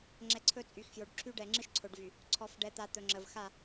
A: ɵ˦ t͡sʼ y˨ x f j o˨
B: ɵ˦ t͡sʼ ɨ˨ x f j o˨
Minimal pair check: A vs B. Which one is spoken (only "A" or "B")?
A